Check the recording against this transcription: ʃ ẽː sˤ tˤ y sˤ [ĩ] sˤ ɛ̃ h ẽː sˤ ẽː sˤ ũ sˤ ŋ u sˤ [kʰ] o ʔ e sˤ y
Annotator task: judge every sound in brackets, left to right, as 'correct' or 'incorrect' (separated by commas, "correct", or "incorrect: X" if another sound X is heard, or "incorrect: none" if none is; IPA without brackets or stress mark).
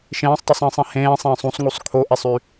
incorrect: ĩː, correct